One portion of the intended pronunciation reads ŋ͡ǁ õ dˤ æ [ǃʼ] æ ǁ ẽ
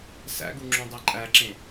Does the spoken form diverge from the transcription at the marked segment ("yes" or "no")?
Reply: no